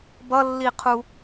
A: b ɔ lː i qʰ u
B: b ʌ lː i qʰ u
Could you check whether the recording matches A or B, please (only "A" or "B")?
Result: B